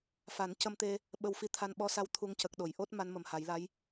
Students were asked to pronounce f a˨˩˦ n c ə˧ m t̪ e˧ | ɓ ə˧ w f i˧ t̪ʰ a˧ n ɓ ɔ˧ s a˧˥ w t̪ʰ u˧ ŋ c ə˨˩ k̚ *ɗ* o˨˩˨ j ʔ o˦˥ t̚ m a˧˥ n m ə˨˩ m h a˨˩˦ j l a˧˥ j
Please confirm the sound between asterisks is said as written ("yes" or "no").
yes